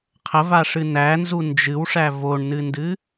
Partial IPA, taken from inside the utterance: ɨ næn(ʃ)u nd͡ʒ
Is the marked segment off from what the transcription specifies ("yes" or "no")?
yes